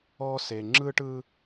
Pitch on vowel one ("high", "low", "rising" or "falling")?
high